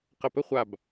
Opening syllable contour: falling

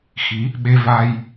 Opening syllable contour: rising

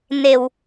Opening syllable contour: low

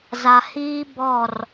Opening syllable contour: low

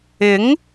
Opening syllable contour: rising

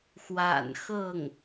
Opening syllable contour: low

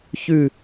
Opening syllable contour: falling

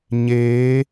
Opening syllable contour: rising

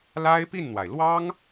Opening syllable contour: high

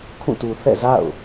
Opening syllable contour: falling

